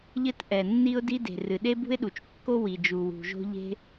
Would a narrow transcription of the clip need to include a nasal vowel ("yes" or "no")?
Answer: no